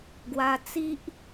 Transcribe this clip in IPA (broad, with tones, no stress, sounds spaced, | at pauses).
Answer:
ɡ w a˧ t͡s i˦ ʔ